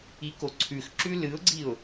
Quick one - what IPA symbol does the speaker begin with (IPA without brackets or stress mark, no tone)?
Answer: i